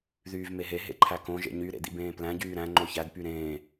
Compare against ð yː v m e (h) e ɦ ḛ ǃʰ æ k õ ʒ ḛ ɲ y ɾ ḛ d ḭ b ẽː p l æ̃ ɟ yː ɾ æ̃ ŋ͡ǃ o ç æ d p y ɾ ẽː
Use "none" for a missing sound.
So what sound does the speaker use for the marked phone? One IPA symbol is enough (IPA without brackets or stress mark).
ɦ